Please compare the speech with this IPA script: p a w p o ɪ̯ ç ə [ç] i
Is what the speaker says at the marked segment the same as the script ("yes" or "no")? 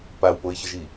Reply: no